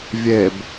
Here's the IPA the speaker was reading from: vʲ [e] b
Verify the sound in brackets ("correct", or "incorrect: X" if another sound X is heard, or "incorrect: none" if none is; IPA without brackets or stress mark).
correct